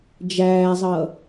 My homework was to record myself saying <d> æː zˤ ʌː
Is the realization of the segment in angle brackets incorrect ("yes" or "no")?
yes